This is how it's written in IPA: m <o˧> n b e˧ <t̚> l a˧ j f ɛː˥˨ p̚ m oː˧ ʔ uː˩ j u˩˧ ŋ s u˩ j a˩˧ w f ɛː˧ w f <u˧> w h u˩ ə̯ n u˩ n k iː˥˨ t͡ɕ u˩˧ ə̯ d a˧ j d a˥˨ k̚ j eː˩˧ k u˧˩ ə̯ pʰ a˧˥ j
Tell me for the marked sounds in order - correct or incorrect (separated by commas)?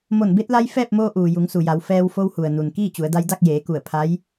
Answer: incorrect, correct, incorrect